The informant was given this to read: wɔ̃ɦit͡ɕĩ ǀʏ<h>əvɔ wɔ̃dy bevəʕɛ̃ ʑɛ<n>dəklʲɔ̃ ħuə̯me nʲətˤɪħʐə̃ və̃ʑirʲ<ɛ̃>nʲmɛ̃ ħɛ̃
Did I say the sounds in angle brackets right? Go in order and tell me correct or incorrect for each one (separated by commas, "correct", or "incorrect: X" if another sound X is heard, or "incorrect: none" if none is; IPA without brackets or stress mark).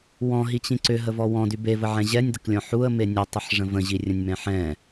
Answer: incorrect: ɦ, incorrect: nʲ, incorrect: ə̃